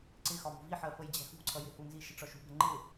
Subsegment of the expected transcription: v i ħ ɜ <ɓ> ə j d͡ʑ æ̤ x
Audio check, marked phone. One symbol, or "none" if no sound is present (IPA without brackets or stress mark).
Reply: f